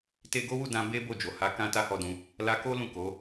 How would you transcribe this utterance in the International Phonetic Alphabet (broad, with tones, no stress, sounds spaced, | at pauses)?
t e˧ ɡ o˦ w u˦˨ d ã˧ b e˦ b o˦˨ d͡ʒ o˨ h a˨˦ k ã˦ t a˦ h ɔ˦˨ d ũ˧ | l a˧ k o˦ l ũ˦˨ k o˨˦